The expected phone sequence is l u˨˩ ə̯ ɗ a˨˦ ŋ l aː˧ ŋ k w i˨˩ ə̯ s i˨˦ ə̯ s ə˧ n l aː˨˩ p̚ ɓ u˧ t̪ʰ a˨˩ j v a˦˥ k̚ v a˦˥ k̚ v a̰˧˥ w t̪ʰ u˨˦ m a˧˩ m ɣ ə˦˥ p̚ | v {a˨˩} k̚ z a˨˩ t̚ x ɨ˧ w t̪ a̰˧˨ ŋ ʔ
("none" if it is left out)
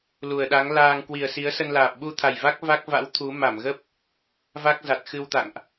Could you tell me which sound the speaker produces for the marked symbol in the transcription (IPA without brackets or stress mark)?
a˦˥